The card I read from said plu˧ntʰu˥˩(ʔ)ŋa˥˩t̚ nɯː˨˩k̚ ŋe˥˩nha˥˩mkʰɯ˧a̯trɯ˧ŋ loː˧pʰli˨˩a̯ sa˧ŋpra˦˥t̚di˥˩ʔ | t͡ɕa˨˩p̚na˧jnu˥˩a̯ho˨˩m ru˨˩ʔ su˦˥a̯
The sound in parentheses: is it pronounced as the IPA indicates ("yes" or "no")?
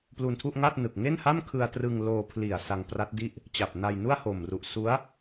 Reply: yes